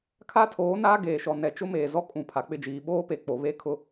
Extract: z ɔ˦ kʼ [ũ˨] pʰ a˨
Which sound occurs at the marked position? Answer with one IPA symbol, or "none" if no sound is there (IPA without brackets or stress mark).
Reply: ũ˨